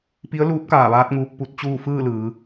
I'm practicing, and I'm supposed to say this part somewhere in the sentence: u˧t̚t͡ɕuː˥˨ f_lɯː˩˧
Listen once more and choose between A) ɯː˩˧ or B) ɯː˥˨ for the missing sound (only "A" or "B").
B